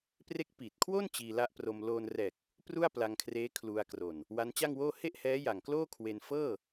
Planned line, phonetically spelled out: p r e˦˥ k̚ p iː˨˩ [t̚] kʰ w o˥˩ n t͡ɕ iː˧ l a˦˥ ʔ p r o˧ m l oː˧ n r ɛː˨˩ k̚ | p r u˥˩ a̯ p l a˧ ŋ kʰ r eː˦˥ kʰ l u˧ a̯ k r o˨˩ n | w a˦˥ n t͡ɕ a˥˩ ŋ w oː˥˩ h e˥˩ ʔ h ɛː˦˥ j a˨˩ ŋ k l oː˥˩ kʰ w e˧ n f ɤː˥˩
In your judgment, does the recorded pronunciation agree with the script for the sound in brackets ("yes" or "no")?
yes